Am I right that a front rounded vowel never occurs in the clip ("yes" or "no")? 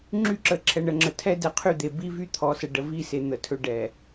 no